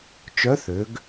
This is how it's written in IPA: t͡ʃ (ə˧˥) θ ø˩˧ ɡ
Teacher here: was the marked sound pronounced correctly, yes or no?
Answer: no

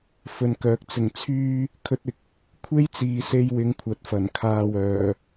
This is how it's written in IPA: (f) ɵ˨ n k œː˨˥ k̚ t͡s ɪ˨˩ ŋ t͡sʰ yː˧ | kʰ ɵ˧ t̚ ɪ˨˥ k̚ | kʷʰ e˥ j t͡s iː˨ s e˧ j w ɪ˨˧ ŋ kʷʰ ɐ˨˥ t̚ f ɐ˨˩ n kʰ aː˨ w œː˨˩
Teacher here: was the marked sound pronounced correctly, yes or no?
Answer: yes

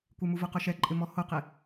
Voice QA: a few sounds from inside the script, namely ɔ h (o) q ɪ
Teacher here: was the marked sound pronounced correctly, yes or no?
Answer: yes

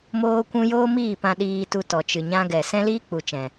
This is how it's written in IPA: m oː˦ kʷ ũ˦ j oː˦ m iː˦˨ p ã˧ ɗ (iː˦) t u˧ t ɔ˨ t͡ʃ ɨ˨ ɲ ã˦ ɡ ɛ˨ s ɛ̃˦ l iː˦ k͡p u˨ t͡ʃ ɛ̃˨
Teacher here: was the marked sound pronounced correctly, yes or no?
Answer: no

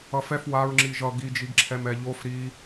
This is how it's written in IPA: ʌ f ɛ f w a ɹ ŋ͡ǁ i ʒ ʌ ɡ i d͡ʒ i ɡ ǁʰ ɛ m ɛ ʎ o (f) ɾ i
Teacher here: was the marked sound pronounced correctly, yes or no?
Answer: yes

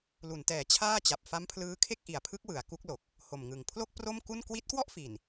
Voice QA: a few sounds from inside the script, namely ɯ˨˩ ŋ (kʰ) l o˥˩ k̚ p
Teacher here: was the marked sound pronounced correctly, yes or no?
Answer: no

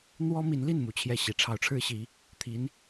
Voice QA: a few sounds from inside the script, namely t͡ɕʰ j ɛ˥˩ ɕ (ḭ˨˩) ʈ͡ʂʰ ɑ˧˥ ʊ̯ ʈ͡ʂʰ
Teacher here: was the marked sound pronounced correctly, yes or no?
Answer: no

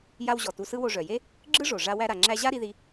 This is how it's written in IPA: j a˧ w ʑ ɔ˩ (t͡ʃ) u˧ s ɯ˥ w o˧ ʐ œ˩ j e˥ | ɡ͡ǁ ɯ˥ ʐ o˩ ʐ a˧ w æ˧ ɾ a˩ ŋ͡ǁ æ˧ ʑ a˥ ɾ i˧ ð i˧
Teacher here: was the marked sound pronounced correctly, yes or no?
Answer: no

